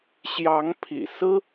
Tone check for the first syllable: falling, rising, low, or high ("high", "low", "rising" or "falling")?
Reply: rising